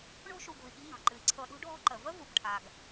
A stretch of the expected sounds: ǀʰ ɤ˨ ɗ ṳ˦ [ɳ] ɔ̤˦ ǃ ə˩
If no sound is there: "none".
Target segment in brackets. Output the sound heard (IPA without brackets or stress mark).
ɖʱ